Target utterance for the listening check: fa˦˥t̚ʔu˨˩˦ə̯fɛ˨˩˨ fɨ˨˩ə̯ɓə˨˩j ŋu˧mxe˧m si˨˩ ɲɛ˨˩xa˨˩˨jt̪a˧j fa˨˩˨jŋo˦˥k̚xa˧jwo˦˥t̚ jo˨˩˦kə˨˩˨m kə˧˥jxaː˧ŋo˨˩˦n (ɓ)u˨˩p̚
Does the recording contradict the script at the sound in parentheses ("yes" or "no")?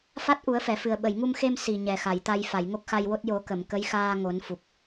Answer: yes